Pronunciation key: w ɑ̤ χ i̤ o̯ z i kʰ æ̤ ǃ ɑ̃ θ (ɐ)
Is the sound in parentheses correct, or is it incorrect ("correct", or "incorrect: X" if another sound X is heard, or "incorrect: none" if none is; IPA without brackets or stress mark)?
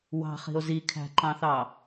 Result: incorrect: ɑ